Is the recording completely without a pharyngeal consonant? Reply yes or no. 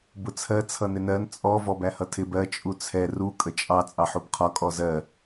no